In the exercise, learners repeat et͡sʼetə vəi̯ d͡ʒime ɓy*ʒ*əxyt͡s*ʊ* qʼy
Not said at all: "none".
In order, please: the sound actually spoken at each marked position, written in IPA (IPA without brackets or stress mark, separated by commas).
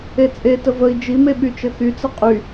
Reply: t͡ʃ, ə